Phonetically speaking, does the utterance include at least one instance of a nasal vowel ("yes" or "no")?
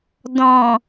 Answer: yes